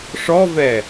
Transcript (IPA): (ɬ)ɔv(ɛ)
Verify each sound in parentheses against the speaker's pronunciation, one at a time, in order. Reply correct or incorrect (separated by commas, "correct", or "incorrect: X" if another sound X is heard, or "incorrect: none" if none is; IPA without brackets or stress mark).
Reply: incorrect: ʂ, correct